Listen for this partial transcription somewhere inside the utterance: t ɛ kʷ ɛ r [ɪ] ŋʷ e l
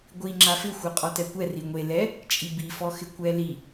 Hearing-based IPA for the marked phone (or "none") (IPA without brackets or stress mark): i